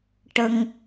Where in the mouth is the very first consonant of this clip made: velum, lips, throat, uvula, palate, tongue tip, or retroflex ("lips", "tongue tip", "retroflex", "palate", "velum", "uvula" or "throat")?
retroflex